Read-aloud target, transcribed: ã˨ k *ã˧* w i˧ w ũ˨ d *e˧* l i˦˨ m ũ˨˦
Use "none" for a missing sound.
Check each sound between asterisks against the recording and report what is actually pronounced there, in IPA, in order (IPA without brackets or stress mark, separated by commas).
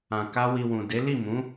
a˧, e˨˦